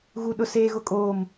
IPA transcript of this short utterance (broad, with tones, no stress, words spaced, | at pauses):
ɣu˨ ɗʊ˨ seː˨ɣʊ˨ kʼoː˨m